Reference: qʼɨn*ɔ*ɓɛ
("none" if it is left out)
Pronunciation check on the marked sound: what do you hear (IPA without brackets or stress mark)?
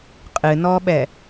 ɔ